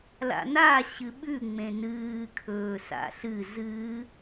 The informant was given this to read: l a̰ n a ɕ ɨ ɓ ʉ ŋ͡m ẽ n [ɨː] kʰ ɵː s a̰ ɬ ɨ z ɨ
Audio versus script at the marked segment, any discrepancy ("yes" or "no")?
no